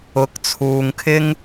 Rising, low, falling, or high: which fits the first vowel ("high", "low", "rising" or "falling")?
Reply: rising